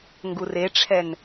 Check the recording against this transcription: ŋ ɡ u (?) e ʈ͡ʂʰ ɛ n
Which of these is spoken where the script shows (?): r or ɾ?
r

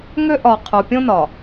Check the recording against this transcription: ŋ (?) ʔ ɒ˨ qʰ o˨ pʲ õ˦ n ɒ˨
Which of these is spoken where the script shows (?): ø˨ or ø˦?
ø˦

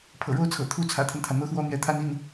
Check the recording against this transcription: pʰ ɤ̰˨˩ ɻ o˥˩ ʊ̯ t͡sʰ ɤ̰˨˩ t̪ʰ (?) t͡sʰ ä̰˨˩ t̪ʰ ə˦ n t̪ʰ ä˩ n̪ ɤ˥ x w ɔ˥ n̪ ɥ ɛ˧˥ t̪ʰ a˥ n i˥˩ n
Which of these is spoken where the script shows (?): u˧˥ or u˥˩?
u˥˩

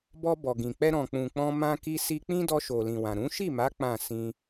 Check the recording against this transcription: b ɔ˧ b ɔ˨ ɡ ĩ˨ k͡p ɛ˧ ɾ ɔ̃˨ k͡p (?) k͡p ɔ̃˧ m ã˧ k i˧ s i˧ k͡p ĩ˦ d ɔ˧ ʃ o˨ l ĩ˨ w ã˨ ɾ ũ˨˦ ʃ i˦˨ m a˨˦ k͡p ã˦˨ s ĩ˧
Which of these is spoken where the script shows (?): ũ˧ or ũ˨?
ũ˨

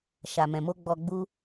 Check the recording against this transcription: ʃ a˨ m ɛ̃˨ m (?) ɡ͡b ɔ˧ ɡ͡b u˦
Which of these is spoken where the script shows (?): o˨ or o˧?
o˧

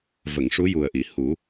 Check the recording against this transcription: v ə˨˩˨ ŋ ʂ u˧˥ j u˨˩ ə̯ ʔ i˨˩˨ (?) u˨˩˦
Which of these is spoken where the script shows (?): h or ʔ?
h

